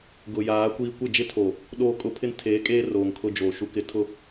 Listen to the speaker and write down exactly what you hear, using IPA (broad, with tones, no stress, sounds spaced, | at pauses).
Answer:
ɡ ʊ˨ j aː˨˦ kʷ iː˦ kʷ ɪ˦˨ d͡ʒ ɪ˦ tʰ o˨ | ɗ oː˦˨ kʼ ʊ˦ pʰ ɪ˦ n tʰ eː˨˦ kʼ eː˦ r oː˨ ŋ kʰ ʊ˦ d͡ʒ oː˨ ʃ u˨ k ɪ˨ tʰ ʊ˦˨